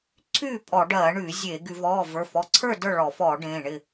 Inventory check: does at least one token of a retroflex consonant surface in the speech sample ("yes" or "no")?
yes